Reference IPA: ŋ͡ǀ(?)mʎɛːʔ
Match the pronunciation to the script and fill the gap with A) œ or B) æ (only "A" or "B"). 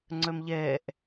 A